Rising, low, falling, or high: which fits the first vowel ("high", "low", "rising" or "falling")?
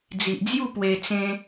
low